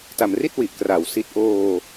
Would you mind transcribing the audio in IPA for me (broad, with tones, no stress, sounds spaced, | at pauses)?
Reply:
t a˩˦ m r i˥˩ t̚ w i˨˩ ʔ k r a˨˩ w s i˥˩ t̚ ʔ oː˧